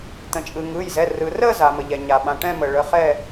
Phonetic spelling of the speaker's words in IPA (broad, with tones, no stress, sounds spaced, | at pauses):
t̪ ə̃˩ t͡ʃʼ ɯ˩ ŋ ɯ˩˧˩ j z ɛ˩˧˩ r ɯ˩ r ə˦˨ z a˩ m ə˩ ʎ ɛ˩ ɲ a˩ ɓ ã˩˧˩ ʈ ɛ̃˦˨ m ə˩ ɭ ə˩˧˩ χ ɛ˦˨